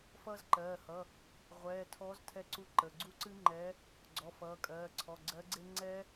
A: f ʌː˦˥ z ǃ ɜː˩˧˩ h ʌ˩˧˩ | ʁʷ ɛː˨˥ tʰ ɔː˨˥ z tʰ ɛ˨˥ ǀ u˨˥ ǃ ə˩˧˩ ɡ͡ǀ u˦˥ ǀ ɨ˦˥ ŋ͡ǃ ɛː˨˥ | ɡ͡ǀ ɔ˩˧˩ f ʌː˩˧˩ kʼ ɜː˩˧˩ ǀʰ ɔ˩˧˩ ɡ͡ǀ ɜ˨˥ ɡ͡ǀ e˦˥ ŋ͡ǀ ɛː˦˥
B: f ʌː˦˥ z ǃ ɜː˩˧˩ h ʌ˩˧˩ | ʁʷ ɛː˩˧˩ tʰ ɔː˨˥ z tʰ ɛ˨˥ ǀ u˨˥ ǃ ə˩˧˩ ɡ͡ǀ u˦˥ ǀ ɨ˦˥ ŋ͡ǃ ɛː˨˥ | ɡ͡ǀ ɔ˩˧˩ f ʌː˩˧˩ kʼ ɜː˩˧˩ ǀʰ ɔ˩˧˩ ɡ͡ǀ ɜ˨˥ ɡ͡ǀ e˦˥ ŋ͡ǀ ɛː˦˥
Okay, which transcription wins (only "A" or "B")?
B